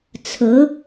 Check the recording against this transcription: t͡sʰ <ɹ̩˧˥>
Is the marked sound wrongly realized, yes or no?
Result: no